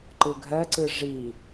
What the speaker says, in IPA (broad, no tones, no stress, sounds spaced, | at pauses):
ǃ ɯ ɡʱ ɜ ǀ ɯ ʐ i